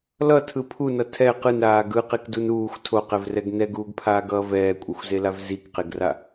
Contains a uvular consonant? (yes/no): yes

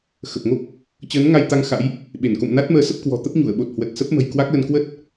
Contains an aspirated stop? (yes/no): no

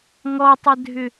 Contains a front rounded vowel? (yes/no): yes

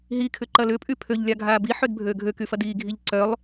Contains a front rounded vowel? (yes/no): yes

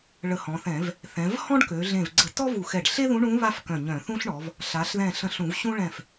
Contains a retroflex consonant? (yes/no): yes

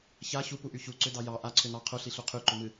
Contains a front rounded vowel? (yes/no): yes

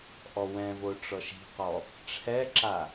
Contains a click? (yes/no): yes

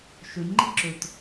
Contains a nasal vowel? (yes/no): no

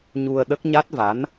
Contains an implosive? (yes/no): yes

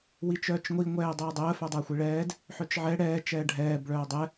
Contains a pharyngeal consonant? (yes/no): yes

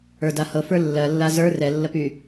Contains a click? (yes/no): no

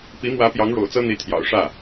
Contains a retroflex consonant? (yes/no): yes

